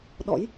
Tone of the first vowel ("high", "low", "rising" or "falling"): rising